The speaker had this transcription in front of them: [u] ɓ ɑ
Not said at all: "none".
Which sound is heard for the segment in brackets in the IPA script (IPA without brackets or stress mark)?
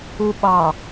u